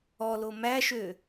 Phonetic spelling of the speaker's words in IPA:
ɔ l o m æ ʃ ø

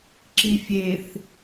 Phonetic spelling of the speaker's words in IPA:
ǁ i fʲ e θ

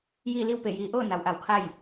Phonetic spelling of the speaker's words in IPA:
j iː˥˨ l i˥˨ w p e˧˩ j iː˩ ʔ oː˥˨ n a˩ w ʔ a˧˩ w kʰ a˥˨ j

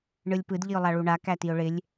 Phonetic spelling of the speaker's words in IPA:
ɳ ɯ lʲ p ɯ d ʎ i ʊ̯ lˠ a ɭ u ɳ a k æ t i ʊ̯ ɭ ɪ lʲ

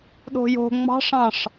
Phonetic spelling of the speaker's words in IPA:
ɗ o̤ j o̤ ŋ͡m ɑ̤ ʂ ɑ̃ ʂ

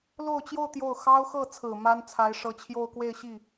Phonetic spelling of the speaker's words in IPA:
l o˥˧ ʊ̯ t͡ɕ j o˥˧ ʊ̯ t̪ j o˥˩ ʊ̯ x ɑ˥ ʊ̯ x ɤ˥˩ t͡sʰ ɹ̩˨˩ m a˥ n t͡sʰ a˧˥ ɪ̯ ʂ ɤ˧˥ t͡ɕʰ j o˥˧ ʊ̯ k w e˥˧ ɪ̯ ɕ i˥˩

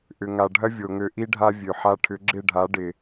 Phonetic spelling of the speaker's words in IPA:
ʔ ʏ˨ ŋ a˨ ɖʱ ɐ˦ vʲ o˨ ŋ ø˧ ʔ i˦ ɖʱ a˦ vʲ ø˨ ħ a˧ ʈʰ ʏ˨˦ ɡ͡ǁ ɪ˦˨ ɖʱ a˨˦ ɖ ɪ˨

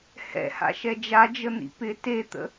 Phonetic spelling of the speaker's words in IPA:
h ɛ̰ h a̰ ʃ ɛ d͡ʒ a d͡ʒ ə n̪ ḭ p ɪ t e t̪ ə̰

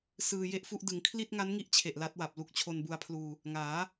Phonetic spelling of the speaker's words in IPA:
s ɯː˧ j e˥˩ ʔ f u˥˩ ʔ d ɯ˩˦ ŋ kʰ l i˥˩ t̚ ŋ a˦˥ n ŋ i˥˩ ʔ t͡ɕʰ e˨˩ ʔ l a˦˥ t̚ w a˨˩ p̚ l u˦˥ k̚ t͡ɕʰ o˧ n b u˧ a̯ pʰ l uː˧ | ŋ aː˩˦

